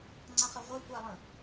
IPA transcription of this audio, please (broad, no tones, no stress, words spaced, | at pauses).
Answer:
ŋ͡ǀãχəʁʷœ kʷalˠə̃